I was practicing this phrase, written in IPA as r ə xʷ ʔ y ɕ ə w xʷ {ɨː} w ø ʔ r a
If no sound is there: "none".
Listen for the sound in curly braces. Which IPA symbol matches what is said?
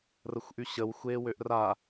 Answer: eː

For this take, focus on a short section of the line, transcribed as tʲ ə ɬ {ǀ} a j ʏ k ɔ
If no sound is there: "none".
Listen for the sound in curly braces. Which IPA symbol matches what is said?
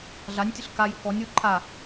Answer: k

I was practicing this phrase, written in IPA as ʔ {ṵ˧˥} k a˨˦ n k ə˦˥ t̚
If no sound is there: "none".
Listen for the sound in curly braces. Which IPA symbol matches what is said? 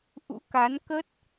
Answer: ṵ˧˥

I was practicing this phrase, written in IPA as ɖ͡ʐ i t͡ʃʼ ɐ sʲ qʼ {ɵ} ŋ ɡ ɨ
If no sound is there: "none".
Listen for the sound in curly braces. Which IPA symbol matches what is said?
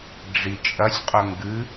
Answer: ɵ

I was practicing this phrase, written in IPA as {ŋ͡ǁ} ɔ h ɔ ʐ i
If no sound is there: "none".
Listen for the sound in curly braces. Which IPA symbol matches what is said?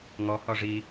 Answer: ŋ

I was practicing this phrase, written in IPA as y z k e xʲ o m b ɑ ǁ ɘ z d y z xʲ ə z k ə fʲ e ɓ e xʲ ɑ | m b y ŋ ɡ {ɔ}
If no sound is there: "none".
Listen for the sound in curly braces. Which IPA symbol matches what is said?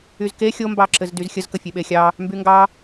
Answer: ɑ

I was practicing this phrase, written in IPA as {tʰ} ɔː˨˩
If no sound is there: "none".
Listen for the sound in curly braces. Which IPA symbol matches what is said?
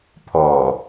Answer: pʰ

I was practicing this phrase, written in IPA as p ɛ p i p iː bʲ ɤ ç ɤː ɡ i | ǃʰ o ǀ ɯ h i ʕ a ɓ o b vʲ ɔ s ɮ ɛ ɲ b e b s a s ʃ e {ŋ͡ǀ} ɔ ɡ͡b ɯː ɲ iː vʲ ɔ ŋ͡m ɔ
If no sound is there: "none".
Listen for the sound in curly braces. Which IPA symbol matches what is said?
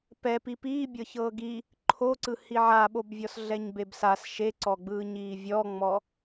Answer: ǀ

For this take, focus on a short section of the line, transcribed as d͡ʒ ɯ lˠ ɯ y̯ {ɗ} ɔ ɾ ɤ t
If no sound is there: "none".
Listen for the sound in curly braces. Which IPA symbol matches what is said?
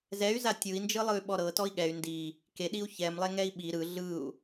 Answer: ɓ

